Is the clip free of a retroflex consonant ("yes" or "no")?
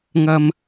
yes